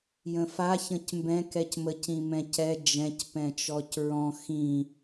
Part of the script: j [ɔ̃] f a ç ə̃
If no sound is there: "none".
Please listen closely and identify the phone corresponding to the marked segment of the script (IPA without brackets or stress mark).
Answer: ə̃